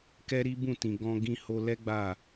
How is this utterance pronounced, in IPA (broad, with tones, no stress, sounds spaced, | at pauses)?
k ɛ˦ ɾ i˦ b ũ˦˨ t ĩ˨ ɡ ɔ̃˧ ɡ ĩ˧ h o˧ l ɛ˦ ɡ͡b a˦˨